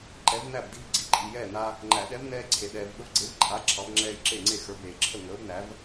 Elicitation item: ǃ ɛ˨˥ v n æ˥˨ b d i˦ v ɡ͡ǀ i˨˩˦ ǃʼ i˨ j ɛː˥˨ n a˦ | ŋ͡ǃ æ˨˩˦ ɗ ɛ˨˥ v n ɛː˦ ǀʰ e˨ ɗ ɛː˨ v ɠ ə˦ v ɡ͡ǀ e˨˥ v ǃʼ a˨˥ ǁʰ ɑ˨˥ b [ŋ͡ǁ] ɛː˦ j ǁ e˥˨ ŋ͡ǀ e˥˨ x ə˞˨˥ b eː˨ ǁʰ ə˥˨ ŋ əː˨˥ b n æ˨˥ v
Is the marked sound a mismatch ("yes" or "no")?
no